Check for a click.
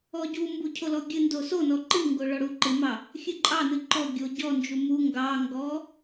present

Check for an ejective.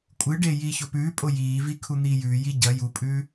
present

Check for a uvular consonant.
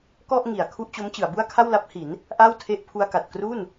absent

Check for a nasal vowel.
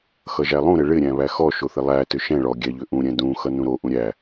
present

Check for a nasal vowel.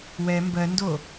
absent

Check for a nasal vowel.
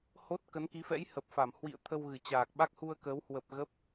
absent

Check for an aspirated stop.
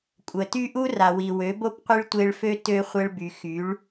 absent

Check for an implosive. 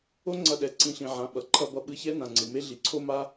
present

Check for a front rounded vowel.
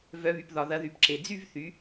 present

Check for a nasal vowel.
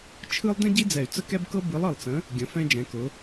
present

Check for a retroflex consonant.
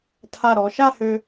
absent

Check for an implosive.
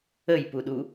present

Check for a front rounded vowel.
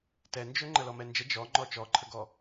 present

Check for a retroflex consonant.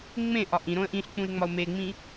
absent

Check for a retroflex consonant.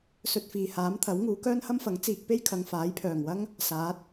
absent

